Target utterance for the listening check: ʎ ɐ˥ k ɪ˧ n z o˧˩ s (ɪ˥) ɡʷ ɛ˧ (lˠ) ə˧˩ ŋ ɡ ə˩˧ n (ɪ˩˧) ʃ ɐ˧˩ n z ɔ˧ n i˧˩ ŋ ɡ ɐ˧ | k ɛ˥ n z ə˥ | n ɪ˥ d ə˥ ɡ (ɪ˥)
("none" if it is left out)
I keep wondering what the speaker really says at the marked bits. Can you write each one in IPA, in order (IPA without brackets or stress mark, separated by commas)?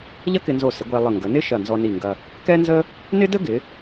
ɪ˩˧, lˠ, ɪ˥, ɪ˩˧